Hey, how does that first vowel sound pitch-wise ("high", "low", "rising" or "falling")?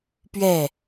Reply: falling